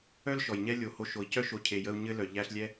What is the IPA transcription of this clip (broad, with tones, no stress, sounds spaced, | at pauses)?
œ˥ l ʃ ɔ˩ j ɲ ɛ˦ lʲ o˨ h o˦ ʃ o˨ i̯ c œ˥ ʃ o˨ cʰ e˨ j ə˦ u̯ ɲ ɘ˦ l œ˩ ʎ æ˦ ɬ lʲ ɛ˥